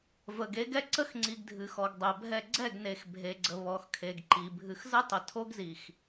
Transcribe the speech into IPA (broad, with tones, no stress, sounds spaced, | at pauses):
v ə˨ ɡ e˨˦ ɡ ɛ˦ ǀ ə˦ x ŋ͡ǀ i˨ ɡ dʱ ɨ˨ x ɔ˨ ɡ dˤ ɛ˨ bʱ ɛ˦˨ ɡ͡ǀ ɛ˦˨ ɡ n e˨ x bʱ e˨ ɡ͡ǀ ə˨ β ɔ˨ x kʰ e˨ ɡ ǃ i˨ bʱ ɨ˨ x z ə˦ tˤ ə˨ tʰ o˦ ɡ z i˨ x